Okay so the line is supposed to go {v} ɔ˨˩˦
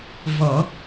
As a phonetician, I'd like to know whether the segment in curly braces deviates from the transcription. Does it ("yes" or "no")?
no